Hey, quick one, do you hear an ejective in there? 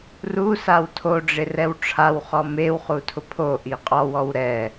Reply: yes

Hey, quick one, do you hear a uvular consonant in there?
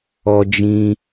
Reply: no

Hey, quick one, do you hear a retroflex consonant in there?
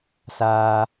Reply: no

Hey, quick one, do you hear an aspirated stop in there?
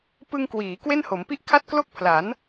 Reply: yes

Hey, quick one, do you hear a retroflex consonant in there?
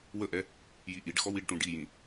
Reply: yes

